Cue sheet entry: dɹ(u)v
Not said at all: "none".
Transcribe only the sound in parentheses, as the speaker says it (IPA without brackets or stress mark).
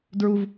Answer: u